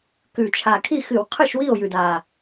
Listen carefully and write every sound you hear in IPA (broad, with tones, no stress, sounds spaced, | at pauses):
k ʉ˨˩ t͡ʃʰ a˨˩ kʰ i˥˩ x ɨ˧˩˧ w qʰ ɨ˥˩ ʃ w i˥˩ o̯ j ʉ˨˩ d a˨˩